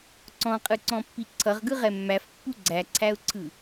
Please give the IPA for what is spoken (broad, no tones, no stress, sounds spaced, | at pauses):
ǀ ɔ̃ qʼ ɯ ǀ ɔ̃ pː i ǀʰ ʌ ʁ ɡ ɯ ʁ ɛ mː æ f pː u ɡ͡ǀ æ ǀʰ æ ʊ̯ ǀʰ ɯ